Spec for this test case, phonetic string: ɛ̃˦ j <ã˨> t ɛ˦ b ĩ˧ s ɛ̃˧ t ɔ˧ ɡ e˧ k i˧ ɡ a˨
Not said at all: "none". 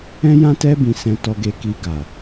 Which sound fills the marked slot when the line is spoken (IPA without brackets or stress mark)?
ã˦